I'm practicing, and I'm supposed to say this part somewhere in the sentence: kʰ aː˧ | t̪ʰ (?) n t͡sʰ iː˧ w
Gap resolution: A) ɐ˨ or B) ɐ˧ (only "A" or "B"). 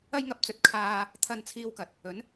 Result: B